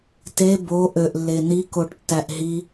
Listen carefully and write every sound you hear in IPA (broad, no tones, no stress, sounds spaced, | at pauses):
t e b o ʔ ø ʔ lː e n i k o ʈ tː æ ʔ ɦ i